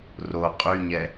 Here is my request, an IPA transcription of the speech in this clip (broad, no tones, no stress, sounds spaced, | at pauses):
r o qʼ y ɲ ɛ